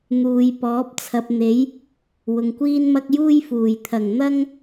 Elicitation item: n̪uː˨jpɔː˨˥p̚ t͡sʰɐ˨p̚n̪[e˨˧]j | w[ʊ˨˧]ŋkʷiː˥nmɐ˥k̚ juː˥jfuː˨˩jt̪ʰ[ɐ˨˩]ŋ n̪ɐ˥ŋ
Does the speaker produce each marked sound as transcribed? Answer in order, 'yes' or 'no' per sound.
no, no, yes

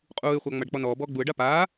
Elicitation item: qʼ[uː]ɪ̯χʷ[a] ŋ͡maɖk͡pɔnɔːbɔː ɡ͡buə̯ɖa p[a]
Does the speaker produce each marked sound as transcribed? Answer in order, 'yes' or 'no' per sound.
yes, yes, no

